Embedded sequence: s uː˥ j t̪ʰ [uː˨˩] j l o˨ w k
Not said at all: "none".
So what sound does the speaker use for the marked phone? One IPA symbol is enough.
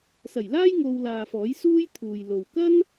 uː˨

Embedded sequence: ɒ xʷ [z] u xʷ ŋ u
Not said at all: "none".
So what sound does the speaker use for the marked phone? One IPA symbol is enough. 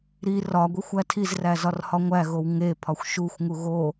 ʃ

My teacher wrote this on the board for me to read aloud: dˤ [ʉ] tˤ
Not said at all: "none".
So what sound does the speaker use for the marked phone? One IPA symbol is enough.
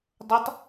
ʊ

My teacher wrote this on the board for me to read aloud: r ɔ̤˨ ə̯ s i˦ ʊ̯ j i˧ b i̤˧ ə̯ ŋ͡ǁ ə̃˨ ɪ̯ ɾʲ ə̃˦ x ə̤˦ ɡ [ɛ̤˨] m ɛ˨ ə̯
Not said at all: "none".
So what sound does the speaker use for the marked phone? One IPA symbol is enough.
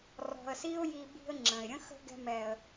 ɛ̤˧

